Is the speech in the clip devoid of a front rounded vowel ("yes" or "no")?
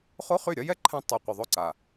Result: no